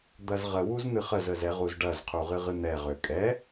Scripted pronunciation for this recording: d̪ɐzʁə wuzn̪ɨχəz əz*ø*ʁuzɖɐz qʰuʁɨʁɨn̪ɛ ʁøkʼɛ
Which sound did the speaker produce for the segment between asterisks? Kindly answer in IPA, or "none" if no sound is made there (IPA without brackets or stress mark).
ɛ